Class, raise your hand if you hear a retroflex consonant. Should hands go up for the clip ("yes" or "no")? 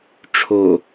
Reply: yes